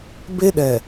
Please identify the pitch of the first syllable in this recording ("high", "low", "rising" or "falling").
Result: high